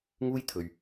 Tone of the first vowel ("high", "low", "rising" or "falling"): high